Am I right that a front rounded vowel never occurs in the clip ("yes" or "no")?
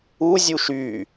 no